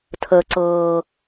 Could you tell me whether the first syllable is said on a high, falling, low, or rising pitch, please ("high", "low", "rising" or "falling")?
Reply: high